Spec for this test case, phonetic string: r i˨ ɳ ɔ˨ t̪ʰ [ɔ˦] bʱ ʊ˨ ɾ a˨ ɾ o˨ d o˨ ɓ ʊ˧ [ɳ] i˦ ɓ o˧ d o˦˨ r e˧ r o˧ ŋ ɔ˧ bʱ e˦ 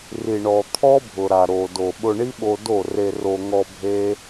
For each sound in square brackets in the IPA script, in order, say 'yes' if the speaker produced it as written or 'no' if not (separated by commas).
yes, yes